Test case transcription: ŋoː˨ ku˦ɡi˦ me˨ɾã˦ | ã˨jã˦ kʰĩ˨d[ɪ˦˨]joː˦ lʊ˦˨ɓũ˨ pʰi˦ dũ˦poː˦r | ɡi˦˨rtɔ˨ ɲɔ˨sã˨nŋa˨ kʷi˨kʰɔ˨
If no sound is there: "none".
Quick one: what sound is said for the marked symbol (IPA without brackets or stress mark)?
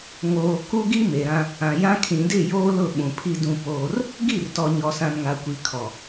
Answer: ɪ˦˨